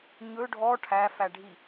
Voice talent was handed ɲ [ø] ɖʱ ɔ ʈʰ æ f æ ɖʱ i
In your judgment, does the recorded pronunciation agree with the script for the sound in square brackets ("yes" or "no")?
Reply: no